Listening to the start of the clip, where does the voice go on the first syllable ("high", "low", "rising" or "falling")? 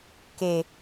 low